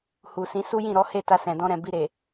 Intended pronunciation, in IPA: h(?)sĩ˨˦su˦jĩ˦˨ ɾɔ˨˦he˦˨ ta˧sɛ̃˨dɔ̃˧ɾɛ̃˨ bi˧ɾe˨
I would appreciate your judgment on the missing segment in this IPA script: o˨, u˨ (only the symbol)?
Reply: u˨